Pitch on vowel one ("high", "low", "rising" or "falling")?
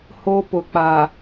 high